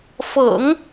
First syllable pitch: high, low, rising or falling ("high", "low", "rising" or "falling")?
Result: low